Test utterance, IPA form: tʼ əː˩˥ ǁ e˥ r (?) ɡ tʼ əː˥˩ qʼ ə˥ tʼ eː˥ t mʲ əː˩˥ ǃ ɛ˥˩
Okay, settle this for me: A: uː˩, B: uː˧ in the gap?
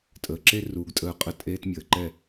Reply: B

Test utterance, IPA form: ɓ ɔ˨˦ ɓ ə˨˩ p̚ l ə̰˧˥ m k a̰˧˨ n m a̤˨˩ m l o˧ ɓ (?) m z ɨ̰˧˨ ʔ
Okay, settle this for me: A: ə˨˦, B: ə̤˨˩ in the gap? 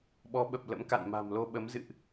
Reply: A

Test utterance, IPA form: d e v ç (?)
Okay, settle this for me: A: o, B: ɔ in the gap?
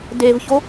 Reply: A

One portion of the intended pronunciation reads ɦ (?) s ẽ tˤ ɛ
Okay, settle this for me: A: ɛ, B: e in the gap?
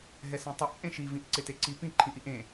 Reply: A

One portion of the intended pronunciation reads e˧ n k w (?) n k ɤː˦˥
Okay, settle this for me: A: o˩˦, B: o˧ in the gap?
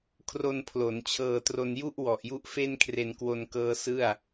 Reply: B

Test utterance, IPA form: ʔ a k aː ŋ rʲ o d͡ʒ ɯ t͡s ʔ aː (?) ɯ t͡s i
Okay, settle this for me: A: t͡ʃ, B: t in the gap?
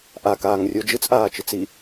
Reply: A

